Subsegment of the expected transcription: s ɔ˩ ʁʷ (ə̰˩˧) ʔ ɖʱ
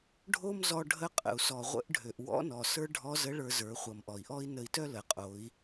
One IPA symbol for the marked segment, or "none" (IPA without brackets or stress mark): ə̰˧˥